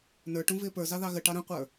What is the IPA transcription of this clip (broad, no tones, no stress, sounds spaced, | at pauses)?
n ə˞ ʈ ũ v ɪː p ə˞ z ɑ ð ɑ ɣ ə ʈ ɑ ɾ ə̃ qʷ ə˞